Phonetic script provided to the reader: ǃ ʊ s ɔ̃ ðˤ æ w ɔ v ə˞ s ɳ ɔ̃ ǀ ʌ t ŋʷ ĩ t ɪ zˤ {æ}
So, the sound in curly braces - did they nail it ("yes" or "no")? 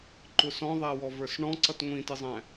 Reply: no